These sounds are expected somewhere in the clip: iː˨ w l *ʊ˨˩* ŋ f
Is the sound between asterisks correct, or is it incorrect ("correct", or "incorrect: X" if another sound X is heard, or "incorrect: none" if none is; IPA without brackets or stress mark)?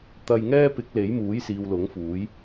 incorrect: ʊ˨˥